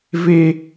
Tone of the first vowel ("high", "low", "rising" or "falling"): high